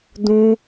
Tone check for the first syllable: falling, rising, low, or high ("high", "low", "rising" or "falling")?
high